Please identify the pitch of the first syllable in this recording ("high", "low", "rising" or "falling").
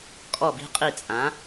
falling